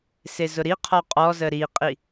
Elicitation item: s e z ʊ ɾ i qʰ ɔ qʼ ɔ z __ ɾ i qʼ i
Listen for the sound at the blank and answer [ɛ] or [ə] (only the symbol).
ə